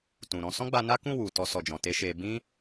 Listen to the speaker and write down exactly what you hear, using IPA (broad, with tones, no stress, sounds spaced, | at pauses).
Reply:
t ũ˨ ɾ ɔ̃˨˦ s ɔ̃˦ ɡ͡b a˧ n a˦ k ũ˦˨ w u˨ t ɔ˧ s ɔ˨ d͡ʒ ɔ̃˨ t e˧ ʃ e˧ b ĩ˦